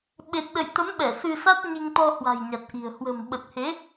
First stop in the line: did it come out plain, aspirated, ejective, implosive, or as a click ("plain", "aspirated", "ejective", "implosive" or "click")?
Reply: implosive